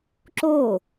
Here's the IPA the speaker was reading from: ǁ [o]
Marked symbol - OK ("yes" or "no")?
yes